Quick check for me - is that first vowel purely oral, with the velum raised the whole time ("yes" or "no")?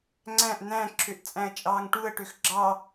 no